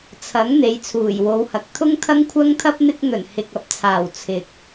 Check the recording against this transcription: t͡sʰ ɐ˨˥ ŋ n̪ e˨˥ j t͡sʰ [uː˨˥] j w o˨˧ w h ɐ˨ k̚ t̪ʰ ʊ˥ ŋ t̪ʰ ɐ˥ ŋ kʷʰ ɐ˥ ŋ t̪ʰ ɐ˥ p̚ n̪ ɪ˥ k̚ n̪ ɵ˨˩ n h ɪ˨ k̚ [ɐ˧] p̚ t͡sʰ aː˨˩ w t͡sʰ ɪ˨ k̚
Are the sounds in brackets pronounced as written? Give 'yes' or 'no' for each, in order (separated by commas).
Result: no, no